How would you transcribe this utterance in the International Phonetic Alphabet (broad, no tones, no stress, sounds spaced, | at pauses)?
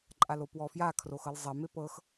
ǃʼ a l o p w ɔ f j a kʰ r o x ɤ l zˤ ɛ m e p ɤ x